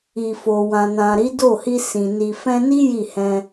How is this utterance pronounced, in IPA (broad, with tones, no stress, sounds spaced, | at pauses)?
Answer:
i˨ f o˨ w ã˨ n ã˨ ɾ i˨˦ d o˦˨ h i˧ s ĩ˨ n i˨ f ɛ̃˧ n i˦ j i˦˨ h ɛ̃˧